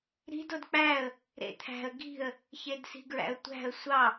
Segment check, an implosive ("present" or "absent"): absent